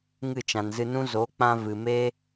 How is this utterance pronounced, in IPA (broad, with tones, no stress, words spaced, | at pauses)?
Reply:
ŋɨ˦˨t͡ʃã˨nzɨ˧nũ˦ zo˨˦k͡pã˧ vɨ˨me˦